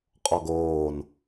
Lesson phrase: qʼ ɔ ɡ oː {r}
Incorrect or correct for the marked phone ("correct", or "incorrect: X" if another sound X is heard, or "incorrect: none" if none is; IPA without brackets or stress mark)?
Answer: incorrect: n